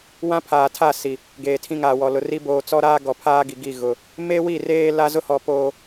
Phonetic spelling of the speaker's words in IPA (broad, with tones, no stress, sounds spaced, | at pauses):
w ã˦ pʰ aː˨ tʰ a˦˨ s i˨ | ɡ eː˨ tʰ ĩ˦ ŋ aː˨ w ɔ˨ l ʊ˨ r i˦ b oː˨ t͡s ɔ˦ ɾ aː˦ ɡ ɔ˨ pʰ aː˦ ɡ i˨ ɡ i˦˨ ɣ ʊ˨ | m e˦ w i˦˨ r eː˦ l a˦ z ʊ˦ h ɔ˨ p oː˨